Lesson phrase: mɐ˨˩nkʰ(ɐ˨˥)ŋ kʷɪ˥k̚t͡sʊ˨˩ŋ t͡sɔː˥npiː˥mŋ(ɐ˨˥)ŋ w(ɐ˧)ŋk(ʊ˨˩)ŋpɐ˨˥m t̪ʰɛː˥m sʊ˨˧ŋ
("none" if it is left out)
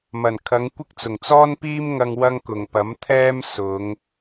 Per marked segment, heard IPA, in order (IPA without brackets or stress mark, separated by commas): ɐ˨˧, ɐ˧, ɐ˥, ʊ˨˩